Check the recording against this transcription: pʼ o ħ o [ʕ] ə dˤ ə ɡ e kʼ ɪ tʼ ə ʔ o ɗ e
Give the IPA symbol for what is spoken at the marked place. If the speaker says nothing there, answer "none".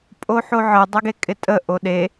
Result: ʕ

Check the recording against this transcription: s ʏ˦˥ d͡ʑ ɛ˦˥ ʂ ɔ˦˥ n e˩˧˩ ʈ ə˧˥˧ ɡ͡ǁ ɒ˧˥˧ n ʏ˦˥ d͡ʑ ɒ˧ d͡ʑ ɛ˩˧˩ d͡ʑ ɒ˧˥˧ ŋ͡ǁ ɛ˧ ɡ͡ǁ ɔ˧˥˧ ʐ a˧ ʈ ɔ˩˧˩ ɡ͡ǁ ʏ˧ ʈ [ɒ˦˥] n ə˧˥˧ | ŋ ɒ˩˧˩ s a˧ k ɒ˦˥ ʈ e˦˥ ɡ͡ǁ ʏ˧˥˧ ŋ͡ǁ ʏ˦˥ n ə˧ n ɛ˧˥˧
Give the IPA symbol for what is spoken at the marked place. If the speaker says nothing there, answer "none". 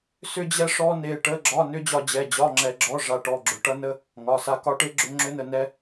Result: ʌ˦˥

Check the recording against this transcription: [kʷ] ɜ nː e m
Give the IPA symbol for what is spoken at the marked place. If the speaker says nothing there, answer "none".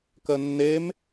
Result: k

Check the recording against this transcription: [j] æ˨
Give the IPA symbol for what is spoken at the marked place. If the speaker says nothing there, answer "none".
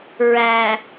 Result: ɹ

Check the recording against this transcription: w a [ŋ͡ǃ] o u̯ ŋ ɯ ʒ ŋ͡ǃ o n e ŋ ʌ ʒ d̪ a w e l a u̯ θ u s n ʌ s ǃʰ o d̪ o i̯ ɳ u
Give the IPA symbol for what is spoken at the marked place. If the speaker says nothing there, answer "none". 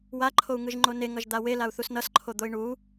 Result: ǃʰ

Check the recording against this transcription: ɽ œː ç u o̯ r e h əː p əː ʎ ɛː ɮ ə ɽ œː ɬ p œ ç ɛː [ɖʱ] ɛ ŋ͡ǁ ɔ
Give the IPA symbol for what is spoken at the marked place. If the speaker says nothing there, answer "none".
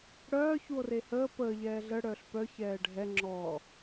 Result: ɖʱ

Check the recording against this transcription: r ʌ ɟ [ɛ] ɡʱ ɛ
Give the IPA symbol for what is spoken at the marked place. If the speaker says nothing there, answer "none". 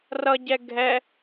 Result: ɛ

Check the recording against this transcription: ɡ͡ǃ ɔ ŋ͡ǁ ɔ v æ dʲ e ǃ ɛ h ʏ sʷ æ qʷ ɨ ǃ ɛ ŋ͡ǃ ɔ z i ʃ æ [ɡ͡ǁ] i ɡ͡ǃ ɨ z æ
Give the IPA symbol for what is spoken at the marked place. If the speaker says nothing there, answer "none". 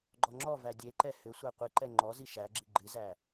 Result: ɡ͡ǁ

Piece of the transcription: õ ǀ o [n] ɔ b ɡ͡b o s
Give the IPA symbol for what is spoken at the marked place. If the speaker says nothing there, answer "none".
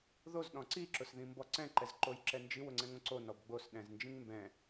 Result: n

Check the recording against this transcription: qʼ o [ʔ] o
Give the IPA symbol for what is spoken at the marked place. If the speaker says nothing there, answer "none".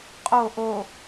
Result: ʔ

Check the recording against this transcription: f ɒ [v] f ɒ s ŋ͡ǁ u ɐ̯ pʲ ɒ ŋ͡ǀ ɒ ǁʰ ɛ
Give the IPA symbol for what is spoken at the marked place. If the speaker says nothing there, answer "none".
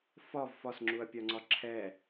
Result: v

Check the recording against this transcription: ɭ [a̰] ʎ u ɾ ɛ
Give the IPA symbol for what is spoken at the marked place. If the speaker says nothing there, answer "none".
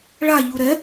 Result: a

